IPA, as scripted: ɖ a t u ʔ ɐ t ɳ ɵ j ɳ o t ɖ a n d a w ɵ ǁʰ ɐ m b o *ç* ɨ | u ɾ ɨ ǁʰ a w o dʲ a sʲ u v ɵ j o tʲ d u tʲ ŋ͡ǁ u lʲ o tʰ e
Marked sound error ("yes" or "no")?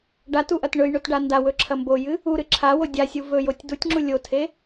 yes